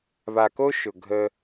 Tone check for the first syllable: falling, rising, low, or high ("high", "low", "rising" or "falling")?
low